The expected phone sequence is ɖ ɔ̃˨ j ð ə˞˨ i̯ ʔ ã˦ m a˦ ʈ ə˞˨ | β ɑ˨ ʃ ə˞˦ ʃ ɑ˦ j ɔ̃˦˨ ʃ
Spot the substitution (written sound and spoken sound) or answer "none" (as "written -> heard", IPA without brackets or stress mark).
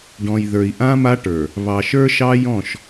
none